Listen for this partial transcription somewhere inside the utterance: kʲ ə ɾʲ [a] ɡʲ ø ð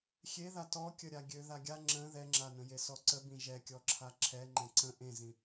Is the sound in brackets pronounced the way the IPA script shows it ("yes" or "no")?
yes